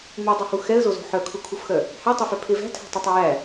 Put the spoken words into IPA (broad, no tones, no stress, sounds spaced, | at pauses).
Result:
m u dˤ e h u x ɛ ə̯ z o z o̤ ħ œ kʰ u kʰ u f x œ | h æ tˤ œ f œ pʰ e v æ̤ tʰ æ̤ tˤ e tˤ e j æ